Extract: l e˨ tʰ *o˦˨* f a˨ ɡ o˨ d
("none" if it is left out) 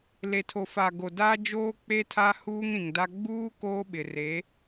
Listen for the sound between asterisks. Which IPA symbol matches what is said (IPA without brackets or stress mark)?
o˨